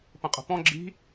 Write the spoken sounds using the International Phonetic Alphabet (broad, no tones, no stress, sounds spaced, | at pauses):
p ə̃ qʼ ə̤ p ɔ̃ ɡ͡ǁ i̤